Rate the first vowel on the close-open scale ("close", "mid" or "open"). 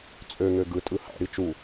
mid